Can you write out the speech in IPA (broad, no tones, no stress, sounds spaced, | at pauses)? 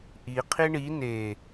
ʔ i qʰ i ɳ i n e